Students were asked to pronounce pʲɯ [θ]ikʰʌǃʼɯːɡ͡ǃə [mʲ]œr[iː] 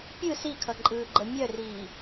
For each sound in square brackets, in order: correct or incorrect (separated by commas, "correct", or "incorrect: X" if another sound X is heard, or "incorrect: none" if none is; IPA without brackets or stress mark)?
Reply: incorrect: s, correct, correct